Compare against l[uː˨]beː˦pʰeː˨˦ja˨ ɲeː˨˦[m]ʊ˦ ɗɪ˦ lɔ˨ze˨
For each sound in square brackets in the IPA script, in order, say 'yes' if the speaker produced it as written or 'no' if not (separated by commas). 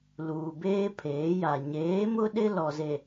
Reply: yes, yes